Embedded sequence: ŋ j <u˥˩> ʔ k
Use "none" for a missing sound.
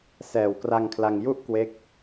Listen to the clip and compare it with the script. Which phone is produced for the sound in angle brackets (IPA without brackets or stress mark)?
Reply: u˥˩